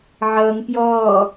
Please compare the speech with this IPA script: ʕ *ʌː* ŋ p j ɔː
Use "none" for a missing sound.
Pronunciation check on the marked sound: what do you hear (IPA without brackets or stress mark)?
ʌː